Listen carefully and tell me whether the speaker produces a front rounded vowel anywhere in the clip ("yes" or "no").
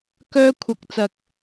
yes